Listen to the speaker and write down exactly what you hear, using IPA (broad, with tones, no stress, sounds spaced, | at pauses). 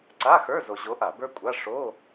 ǀ a˧˥˧ x ə˞˧˥˧ z o˧ ʑ o˧˥ ʔ a˧˩˧ b ə˞˥ kʷʼ a˧˥˧ ʂ o˧˥˧